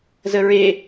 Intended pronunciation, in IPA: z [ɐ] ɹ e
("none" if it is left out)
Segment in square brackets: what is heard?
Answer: ə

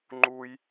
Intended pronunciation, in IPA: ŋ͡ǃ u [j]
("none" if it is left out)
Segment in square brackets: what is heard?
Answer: j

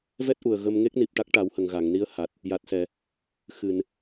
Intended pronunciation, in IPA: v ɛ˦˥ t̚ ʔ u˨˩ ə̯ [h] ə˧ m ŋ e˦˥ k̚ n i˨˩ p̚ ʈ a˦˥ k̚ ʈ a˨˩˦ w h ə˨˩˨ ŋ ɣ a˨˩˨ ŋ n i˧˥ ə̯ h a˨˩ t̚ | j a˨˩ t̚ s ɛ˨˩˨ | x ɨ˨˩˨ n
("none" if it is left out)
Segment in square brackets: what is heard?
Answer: ɣ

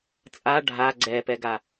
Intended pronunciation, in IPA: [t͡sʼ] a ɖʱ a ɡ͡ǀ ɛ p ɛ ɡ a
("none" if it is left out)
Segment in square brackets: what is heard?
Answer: t͡sʼ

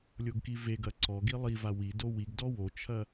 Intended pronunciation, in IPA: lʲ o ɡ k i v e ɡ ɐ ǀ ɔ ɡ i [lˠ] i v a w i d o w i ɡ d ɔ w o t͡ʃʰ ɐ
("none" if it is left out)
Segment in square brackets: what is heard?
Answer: lˠ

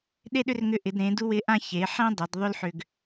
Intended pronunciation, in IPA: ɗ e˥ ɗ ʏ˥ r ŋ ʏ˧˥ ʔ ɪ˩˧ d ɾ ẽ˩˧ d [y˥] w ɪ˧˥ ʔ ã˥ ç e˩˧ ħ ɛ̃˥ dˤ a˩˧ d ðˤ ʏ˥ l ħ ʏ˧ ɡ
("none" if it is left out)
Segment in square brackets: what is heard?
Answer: u˥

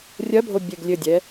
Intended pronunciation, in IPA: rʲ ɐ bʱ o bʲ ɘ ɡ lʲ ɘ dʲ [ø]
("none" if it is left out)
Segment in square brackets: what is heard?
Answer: ɛ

